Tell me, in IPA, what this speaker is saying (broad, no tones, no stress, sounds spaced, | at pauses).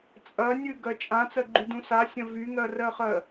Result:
t͡sʼ ɐ nʲ ɨ ɡ ɜ t͡ʃʼ ã t͡s ɜ ɡ͡ǃ y d ũ s a sʲ ɐ̃ v y ŋ ɜ r ɜ χ ɜ